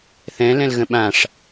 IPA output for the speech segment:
θ ɛ̃ l ɛ̃ l ɣ ə̃ ɓ ã ʂ

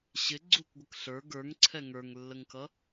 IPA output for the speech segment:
ɕ ɪ ɡ͡ǀ u k ɡʷ ə k ɬ ə˞ ɡ ə˞ ŋ ǀʰ ɛ ŋ ə˞ ŋ lː ə ŋ k ʌ

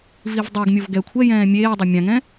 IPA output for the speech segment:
v i v dˤ o ɡ mʲ o v ɡ ɛ kʷʰ ɛ j ɛ̃ː mʲ eː dˤ ɪ mʲ ã ŋ ɛ̃

